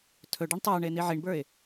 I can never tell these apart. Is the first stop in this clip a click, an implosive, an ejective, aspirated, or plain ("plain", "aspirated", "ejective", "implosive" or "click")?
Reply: aspirated